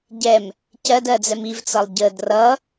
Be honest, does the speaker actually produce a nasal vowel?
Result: no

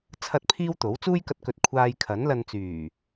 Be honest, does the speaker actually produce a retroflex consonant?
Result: no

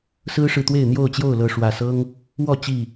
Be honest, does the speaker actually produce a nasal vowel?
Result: no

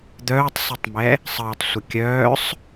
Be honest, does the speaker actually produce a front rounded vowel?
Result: yes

